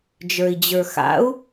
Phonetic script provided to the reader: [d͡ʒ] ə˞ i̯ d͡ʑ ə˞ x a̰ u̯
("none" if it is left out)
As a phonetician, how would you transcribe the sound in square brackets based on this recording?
d͡ʒ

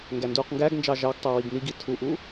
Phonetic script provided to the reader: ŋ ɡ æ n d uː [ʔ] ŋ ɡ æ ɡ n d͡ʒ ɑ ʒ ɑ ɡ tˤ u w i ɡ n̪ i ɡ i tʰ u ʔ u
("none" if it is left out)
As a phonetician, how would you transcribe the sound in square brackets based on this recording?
q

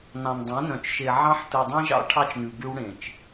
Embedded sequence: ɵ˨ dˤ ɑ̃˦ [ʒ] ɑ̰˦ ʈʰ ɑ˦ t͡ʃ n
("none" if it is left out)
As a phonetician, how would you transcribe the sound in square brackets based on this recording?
ʒ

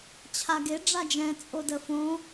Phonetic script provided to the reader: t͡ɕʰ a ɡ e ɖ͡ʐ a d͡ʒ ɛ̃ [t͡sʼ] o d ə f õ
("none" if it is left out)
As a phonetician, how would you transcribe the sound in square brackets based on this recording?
t͡sʼ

